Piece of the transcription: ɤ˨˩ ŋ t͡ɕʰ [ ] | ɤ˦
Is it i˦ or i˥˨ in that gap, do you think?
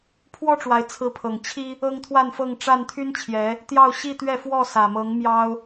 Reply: i˦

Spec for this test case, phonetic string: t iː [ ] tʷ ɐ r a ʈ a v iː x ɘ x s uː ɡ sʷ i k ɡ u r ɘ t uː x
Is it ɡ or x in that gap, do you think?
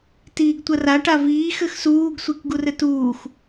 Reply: ɡ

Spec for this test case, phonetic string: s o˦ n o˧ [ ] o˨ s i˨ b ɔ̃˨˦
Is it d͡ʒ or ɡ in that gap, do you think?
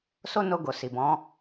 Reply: ɡ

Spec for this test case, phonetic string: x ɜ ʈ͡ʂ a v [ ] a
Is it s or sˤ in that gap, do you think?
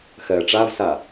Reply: s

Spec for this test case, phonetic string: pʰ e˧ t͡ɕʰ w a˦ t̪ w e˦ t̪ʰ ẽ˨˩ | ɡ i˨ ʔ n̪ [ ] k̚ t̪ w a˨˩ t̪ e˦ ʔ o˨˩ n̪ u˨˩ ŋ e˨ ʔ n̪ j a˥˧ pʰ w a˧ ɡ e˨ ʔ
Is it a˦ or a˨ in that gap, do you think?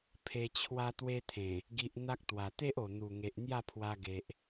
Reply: a˦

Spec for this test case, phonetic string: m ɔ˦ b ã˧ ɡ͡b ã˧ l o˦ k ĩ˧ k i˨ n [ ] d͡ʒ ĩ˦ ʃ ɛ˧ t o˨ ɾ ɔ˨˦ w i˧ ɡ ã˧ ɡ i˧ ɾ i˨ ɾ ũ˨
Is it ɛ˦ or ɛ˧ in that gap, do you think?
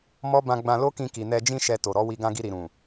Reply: ɛ˧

